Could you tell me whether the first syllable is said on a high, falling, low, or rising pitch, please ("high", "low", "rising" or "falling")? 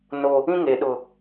high